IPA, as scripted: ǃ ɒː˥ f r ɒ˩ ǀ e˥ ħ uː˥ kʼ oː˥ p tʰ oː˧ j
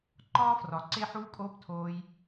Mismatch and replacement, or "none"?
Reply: none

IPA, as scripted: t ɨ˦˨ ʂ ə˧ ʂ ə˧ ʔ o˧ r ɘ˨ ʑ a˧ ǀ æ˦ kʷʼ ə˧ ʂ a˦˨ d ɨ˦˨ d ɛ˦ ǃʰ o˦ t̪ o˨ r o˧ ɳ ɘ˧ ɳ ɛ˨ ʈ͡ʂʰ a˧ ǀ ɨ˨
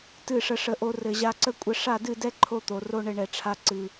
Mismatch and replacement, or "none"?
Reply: æ˦ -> ə˦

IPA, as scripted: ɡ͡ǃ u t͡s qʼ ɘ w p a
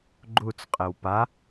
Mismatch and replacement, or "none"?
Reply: none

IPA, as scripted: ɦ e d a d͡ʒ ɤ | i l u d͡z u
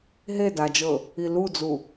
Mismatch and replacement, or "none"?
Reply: none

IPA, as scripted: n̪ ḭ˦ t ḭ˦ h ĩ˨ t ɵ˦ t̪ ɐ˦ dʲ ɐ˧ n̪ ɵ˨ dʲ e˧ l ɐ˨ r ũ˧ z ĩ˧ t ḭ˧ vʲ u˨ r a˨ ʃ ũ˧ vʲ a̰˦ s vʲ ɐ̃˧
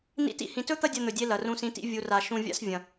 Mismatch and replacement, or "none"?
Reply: z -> s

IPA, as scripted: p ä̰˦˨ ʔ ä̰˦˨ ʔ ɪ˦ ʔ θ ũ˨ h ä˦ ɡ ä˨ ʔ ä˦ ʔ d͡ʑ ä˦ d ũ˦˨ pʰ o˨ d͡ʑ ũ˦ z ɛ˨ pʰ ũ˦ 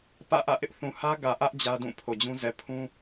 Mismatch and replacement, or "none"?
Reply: none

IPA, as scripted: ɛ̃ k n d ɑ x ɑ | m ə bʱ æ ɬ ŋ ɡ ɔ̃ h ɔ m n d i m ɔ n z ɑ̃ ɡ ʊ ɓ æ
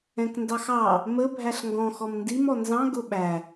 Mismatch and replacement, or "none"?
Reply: h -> x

